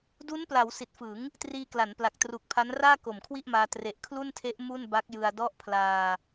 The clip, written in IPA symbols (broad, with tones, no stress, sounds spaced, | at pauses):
d u˦˥ n p l a˩˦ w s i˨˩ t̚ f ɯ˩˦ ŋ | t r iː˧ k l a˩˦ n p l a˨˩ k̚ t r uː˨˩ k̚ pʰ a˦˥ n r aː˥˩ k o˨˩ m kʰ w i˥˩ ʔ m aː˧ t r e˨˩ ʔ kʰ l u˥˩ n tʰ e˦˥ ʔ m u˥˩ n b a˦˥ k̚ j ɯ˧ a̯ d ɔ˦˥ ʔ pʰ l aː˧